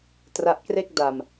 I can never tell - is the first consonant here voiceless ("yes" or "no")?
yes